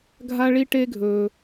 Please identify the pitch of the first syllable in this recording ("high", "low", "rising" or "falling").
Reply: high